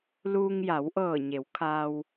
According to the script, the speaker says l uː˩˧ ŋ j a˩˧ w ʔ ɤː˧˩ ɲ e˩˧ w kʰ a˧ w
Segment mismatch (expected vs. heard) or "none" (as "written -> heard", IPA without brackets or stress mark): uː˩˧ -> uː˧